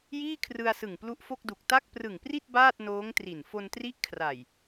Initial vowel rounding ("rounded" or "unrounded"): unrounded